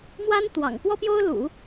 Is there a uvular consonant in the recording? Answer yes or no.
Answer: no